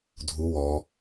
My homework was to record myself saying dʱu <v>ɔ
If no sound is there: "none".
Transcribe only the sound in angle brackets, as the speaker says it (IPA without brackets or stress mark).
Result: w